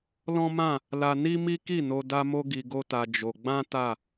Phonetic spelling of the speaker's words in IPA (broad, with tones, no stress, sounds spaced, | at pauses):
l ɔ̃˦ m ã˦˨ | l a˧ n i˦ m i˦ k i˦˨ n o˧ d a˦ m o˦ ɡ i˧ ɡ o˦ t a˧ d͡ʒ o˧ ɡ͡b ã˦ t a˦˨